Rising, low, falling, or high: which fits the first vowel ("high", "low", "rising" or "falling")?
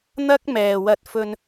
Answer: high